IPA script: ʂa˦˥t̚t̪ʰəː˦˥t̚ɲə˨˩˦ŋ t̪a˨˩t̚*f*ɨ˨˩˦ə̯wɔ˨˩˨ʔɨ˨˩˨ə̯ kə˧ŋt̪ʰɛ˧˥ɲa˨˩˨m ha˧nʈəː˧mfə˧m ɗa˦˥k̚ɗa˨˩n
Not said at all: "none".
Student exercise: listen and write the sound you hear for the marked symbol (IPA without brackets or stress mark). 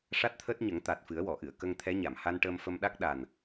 f